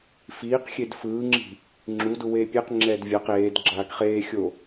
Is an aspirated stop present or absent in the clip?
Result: absent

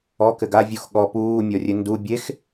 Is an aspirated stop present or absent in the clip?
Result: absent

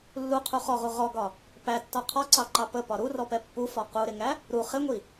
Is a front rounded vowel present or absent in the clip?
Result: absent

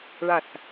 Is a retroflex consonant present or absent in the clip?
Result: present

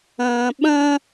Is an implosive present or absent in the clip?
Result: present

